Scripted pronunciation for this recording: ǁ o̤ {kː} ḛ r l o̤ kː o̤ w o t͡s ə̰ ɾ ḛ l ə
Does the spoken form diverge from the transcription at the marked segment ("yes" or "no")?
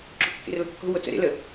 no